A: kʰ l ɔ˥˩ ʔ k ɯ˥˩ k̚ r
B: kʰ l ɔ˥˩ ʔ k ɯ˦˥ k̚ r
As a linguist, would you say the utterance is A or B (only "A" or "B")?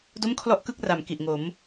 A